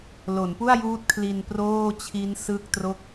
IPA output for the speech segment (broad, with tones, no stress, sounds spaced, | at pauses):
l o˩˦ n p u˥˩ a̯ j uː˦˥ t̚ kʰ l i˧ n p r oː˥˩ t͡ɕʰ i˦˥ n s ɯ˥˩ k̚ t r o˥˩ k̚